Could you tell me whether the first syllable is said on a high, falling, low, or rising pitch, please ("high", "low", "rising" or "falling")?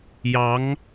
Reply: rising